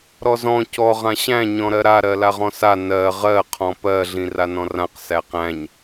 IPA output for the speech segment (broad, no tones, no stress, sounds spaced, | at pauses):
ɾ ɔ z ɔ̃ c ɔ ʁ ã ɕ æ̃ ɲ ɔ̃ ɾ ɜ ɾ a ɾ ɜ l a ʁ ɔ̃ s a n ɜ ʁ ɜ qʰ ɔ̃ p ɜ ɮ ĩ r a n ɔ̃ r ã q s æ q æ̃ ɲ